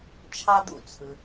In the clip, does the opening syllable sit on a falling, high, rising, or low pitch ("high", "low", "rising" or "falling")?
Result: high